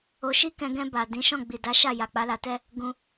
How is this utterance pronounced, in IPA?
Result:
o˧ʃi˦kɛ̃˧ ɡɛ̃˧ ba˨dĩ˨˦ʃɔ̃˦˨ ɡ͡bi˨da˨˦ʃa˦˨ ja˨k͡pa˨˦la˧tɛ˦ | ɡũ˧

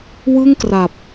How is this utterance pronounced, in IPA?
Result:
wɯ˥˩ŋkra˨˩p̚

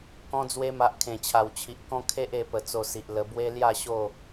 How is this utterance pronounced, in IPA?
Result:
kɔ̃˧d͡zwe˧ma˨ʔ kʰẽ˨˩t͡ɕʰa˨˩wt͡ɕʰi˨ʔkɔ̃˦ kʰe˦ʔe˧ pə˨˩ t͡so˧si˨ʔlə˧ bwe˦lja˥˧ɕo˥˧

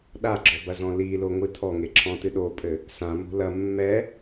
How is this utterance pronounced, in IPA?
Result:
ɗaɡ͡ǁɔbɐzɔ̃ liloŋʷɨ tʰɔŋeǁʰɔ̃tɨ ɗopʼɘ | sãmo̤ lɐ mːɛ

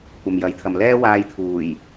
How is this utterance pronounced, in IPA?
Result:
kʷɐ˨mjɐ˨˥jt̪ʰɐ˨m lɛː˥waː˧j t̪ʰuː˨˩j

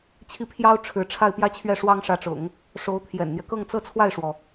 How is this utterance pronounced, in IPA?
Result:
t͡ɕʰi˥˩pʰjɑ˥ʊ̯ ʈ͡ʂʰɻ̩˧˥ʈ͡ʂʰa˥˩ɪ̯ pjä˥t͡ɕʰɥɛ˥˩ ʂwɑ˥ŋʂä˧˥ʈ͡ʂʊ̰˨˩˦ŋ | ʂo˧˥ʊ̯ t̪ʰjɛ̰˨˩nn̪jɛ˦ kɤ˥˧ŋt͡sɤ˥˧ t͡sʰwa˥˩ɪ̯ʂwɔ˩

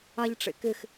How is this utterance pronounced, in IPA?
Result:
aʎʈ͡ʂḛkɪx

